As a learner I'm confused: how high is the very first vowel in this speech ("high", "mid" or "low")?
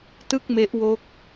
high